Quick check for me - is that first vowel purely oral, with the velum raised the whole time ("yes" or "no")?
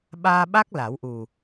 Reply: yes